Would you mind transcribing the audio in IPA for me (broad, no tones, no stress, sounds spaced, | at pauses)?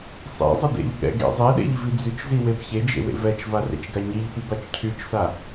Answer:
sˤ ḛ zˤ ɪ d ḛ ʎ ɠ ɛ̰ ɡ ḛ zˤ e ɗ ḛ ʎ v i d͡z y t͡ʃ z i w e b ç e d͡ʒ ḛ w ḛ v ɛ t͡ʃ v a r ḛ t͡ʃ ɡ a ɲ i ʎ p i b a t͡ʃ cʰ y t͡ʃ s a